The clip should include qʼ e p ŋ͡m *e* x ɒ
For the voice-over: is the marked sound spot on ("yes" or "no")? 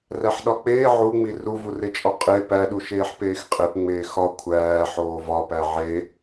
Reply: no